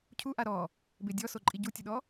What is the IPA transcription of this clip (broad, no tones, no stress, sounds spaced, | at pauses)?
cʰ u ʔ a ɾ ɔ | b e dʲ ɔ s o ǃʼ i ɟ u tʲ ʊ ɗ ɔ